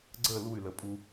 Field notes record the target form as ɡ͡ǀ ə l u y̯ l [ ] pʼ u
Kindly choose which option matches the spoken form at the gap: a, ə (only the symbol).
ə